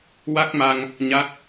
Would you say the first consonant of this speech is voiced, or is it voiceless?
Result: voiced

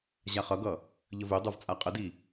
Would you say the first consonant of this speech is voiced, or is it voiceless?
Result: voiced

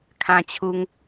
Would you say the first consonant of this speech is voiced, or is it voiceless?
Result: voiceless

